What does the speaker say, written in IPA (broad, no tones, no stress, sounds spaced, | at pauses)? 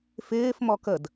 f ɪː f m ɔ k ə d